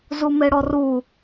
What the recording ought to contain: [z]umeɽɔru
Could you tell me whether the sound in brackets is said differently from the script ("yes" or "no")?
no